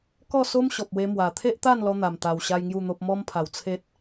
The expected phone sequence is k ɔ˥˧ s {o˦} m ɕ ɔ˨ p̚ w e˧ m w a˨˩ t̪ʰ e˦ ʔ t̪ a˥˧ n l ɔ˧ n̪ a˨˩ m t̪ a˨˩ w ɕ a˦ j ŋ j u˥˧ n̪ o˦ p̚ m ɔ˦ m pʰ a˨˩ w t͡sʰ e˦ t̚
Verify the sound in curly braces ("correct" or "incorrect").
correct